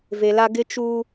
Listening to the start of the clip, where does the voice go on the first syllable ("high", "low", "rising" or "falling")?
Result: low